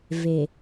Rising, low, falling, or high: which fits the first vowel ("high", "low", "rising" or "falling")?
low